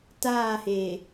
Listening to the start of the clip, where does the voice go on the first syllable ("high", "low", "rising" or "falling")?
falling